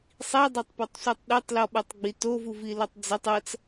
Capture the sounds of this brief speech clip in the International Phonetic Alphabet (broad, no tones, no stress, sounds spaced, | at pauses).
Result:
sˤ i dˤ e tˤ p ɔ tˤ sʷ ɛ tˤ ɗ e tˤ l ɔ ɓ u tˤ ɡ͡b i t o v u v i l ʌ tˤ d͡z e tˤ ʌ t͡s